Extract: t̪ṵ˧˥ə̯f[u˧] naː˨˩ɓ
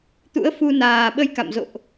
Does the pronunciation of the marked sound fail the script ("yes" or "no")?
no